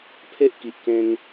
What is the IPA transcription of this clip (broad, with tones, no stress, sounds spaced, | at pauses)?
pʰ e˦ ʔ k i˨ ʔ k ẽ˧ ŋ